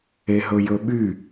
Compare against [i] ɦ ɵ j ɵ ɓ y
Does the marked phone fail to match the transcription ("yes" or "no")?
yes